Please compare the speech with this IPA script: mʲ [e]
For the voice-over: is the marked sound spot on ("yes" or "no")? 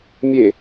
yes